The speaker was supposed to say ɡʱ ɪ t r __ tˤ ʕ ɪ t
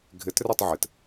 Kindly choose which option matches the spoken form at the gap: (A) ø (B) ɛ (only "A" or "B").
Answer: B